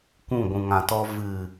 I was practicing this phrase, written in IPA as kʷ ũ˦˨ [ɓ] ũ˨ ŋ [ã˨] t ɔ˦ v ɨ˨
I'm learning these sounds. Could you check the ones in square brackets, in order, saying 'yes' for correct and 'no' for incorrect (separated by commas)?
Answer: no, yes